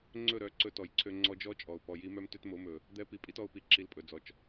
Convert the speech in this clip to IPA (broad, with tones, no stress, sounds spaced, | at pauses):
ŋ͡ǀ ɵ˦˨ ɾ œ˨ ǀ ɵ˧ t ɔ˨ j ǀʰ ø˧ ŋ͡ǀ ɔ˧ d͡ʒ ɔ˦ t͡ʃʼ ɔ˨ ʊ̯ p ɔ˨ j i˧ m œ˦ m t ø˦ t m o˨˦ m ɵ˨ | d̪ ɛ˦ p i˧ pʼ i˦ t ɔ˧ ʊ̯ p i˨˦ ǁ i˧ l pʼ ɵ˨ d͡z ɔ˨ t͡ʃ